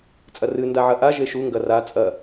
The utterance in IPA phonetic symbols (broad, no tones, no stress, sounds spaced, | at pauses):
t͡sʼ ɐ r ɨ n d a ʕ ɐ ʔ a ʒ e ʃ u ŋ ɡ ɐ r a t͡sʼ ɐ